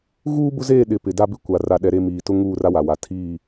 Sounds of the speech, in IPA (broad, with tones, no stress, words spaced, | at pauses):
ɣuː˦bʊ˦zeː˦˨ ɗɪ˨ pɪ˨da˦bɪ˦ kʷa˨ ra˨ɗɛ˨ɾe˦˨ miː˨tʊ˦ŋuː˦˨ra˦ wa˨wa˨ tʰiː˦˨